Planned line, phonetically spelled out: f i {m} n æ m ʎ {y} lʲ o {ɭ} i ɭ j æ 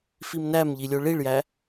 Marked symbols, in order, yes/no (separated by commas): yes, no, yes